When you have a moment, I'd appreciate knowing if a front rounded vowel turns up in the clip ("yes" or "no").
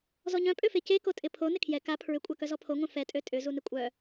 yes